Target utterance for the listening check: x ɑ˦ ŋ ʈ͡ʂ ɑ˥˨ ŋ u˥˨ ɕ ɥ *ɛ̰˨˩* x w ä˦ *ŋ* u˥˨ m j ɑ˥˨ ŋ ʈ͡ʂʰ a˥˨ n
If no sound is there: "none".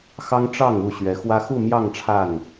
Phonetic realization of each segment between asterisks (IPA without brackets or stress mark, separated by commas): ɛ˨˦, x